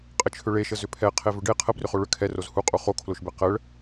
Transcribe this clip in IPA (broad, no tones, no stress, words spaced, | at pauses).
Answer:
qʼət͡ʃʰʏɭeʃə zʏpʰɛqʰe vʏɖe qʰə brʏχoɭʏ kʰɛroz huqʼu χokʰloʃbe qəɭ